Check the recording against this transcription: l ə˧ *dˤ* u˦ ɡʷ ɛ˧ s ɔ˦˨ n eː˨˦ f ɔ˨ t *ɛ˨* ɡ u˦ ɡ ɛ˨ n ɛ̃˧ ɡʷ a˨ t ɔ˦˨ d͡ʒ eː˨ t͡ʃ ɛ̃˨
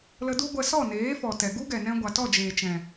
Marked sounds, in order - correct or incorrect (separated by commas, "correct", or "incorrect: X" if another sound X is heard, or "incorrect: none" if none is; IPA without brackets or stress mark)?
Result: incorrect: d, correct